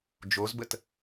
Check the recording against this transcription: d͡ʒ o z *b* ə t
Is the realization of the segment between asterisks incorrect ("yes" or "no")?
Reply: no